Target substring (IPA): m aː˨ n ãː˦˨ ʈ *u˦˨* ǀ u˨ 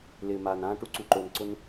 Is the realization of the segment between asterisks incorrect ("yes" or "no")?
yes